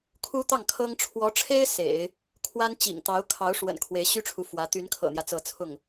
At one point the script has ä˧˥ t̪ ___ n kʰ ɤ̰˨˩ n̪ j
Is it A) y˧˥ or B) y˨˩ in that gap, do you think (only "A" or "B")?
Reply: A